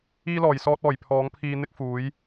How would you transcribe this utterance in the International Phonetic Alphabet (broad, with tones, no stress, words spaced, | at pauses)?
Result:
iː˧lɔː˨˩jsɔː˧t̚ɔː˨˩j pʰɔː˨˥ŋpʰiː˧n̪ɪ˥k̚fuː˨˥j